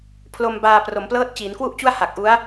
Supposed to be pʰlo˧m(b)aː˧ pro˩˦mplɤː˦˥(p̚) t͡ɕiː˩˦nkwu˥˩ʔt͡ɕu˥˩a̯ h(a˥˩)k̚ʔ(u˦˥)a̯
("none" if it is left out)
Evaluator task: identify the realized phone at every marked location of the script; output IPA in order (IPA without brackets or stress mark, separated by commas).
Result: b, t̚, a˨˩, u˦˥